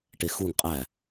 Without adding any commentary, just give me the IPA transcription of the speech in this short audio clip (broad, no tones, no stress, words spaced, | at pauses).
ʈexuŋ qʼæ